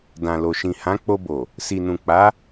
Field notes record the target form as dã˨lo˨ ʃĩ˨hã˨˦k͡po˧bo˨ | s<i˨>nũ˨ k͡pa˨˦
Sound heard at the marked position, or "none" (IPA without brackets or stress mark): i˨